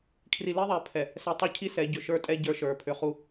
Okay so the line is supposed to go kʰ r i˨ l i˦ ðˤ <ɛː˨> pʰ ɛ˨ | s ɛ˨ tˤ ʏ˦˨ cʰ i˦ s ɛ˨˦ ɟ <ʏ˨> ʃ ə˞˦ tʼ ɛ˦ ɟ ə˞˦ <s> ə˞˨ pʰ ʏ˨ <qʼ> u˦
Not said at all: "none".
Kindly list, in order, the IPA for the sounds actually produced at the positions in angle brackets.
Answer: ɛ˨, ʏ˨, ʃ, χ

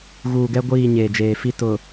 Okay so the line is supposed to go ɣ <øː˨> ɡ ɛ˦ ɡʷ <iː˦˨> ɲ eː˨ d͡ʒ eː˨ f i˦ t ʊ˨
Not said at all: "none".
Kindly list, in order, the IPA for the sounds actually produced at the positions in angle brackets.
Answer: uː˨, iː˦˨

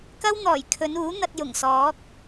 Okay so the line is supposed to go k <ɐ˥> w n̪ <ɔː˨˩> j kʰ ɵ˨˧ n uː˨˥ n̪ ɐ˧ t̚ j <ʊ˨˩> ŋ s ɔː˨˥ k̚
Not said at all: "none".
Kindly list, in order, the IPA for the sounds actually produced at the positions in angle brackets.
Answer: ɐ˥, ɔː˨˩, ʊ˨˩

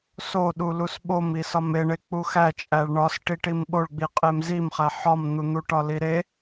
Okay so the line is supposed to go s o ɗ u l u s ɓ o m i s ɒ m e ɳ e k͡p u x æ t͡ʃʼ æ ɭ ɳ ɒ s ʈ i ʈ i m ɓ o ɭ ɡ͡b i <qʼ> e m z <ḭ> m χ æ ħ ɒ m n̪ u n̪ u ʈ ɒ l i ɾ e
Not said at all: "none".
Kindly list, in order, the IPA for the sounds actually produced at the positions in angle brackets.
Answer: qʼ, i

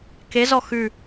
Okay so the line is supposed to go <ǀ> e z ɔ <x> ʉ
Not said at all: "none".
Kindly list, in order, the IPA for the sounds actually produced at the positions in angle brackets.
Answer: k, x

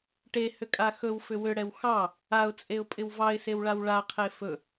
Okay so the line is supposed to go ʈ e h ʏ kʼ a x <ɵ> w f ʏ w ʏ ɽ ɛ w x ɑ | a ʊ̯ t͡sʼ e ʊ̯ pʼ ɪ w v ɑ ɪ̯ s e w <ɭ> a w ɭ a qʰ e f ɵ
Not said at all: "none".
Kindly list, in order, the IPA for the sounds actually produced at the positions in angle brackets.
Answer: ɵ, ɭ

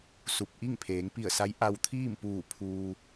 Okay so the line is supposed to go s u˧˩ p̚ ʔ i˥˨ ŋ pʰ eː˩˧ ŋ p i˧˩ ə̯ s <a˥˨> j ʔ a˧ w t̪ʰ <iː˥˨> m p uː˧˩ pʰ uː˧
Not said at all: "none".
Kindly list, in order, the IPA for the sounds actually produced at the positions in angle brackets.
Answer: a˧˥, iː˥˨

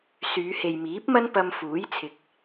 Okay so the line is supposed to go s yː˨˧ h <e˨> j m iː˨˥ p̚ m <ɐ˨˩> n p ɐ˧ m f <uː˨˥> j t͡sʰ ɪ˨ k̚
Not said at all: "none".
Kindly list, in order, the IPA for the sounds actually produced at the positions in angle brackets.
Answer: e˨, ɐ˥, uː˨˥

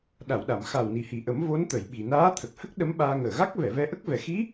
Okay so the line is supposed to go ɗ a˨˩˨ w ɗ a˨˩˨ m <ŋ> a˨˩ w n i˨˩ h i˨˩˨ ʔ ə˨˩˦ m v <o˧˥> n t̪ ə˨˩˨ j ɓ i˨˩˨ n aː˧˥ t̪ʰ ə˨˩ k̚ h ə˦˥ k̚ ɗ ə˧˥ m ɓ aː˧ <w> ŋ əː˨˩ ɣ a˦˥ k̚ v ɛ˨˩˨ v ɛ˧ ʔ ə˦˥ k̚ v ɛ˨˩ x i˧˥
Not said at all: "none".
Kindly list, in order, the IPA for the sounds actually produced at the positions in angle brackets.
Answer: x, o˧˥, none

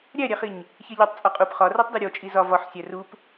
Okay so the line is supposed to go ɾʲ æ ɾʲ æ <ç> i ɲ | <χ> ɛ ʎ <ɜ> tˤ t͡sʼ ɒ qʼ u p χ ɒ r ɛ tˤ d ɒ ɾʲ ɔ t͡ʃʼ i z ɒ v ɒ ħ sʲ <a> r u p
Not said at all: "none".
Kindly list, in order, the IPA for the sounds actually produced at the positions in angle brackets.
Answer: χ, ç, ɜ, æ

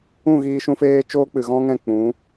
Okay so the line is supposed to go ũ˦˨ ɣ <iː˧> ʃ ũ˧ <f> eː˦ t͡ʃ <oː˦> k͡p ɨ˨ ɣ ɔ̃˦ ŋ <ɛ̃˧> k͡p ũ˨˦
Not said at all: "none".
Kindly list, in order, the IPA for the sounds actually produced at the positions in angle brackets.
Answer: iː˧, f, oː˦, ɛ̃˦˨

